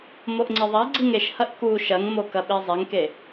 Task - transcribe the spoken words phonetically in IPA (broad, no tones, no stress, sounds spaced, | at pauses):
m o ʔ ŋ͡ǀ i ðˤ a ɡ͡ǀ i ŋ e ʃ h ɐ ʔ k u ʃ ɐ ŋ m o k ɐ ɓ e zˤ e ŋ k e